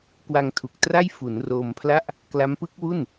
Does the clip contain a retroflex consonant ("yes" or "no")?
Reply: no